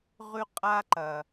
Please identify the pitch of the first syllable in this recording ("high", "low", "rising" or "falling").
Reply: high